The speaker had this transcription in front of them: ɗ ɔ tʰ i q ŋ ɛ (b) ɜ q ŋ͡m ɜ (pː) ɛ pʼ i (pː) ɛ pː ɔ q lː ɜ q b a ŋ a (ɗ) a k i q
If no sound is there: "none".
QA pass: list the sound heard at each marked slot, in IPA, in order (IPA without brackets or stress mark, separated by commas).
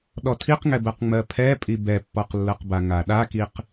b, pʰ, b, ɗ